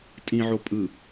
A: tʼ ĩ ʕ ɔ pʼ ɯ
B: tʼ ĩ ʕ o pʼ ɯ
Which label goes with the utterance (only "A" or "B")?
B